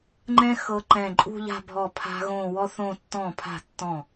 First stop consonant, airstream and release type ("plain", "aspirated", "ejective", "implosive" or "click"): click